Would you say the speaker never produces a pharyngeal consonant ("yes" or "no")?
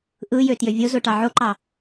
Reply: no